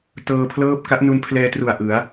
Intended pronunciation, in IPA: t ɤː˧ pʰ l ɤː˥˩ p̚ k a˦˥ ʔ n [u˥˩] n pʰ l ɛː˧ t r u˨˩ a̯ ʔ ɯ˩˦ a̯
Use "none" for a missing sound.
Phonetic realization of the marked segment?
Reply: u˧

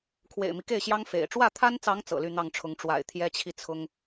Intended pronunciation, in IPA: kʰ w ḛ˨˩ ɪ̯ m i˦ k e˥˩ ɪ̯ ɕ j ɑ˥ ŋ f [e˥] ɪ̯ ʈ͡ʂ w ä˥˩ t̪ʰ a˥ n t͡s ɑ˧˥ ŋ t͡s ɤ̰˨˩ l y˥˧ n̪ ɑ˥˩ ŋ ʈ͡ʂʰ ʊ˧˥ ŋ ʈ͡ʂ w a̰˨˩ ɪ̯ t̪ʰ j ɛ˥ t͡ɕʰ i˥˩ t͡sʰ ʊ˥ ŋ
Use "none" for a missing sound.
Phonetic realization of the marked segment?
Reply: ḛ˨˩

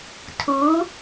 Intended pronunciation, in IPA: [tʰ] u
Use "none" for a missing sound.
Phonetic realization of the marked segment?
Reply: tʰ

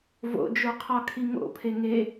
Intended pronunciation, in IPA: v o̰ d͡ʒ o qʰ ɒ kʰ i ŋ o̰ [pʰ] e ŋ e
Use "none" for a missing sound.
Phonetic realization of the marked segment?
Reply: pʰ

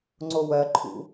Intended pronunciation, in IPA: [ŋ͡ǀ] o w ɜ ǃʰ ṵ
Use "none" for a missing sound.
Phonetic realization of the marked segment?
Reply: ŋ͡ǀ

